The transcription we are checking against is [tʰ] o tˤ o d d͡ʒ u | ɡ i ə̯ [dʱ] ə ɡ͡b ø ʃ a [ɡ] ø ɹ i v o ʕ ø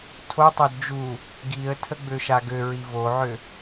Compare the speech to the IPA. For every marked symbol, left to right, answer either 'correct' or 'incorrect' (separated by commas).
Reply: correct, incorrect, correct